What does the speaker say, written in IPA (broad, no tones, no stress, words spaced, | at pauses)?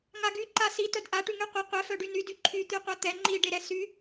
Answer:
ŋaɡy ǃasi tœdʔa ʈyŋyqʷe qʷɛ fœɖyny dyǃʰy t̪yqʷat̪ɛ ŋ͡ǃi ɖeɾɛsy